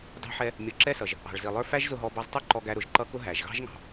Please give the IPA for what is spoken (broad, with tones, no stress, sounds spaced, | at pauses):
d ɑ̤˦ ħ ɛ˦ | mʲ ʌ˨˦ ǁ ɛ˦ s ʌ˨ ʒ | ɑ̤˨ ɭ z i˨ lˠ ə˞˦ f æ˦ ʒ z ʊ˧ ɦ ɔ˧ b ɑ˧ z tˤ ɛ˦ ǃ ɔ˧ ɡ æ˧ ɾ ʊ˨ ʒ ǃ ʌ˦ k ʊ˦ ɦ æ˨ ʒ ɣ ɑ̤˦ ʒ ŋ ɑ̤˨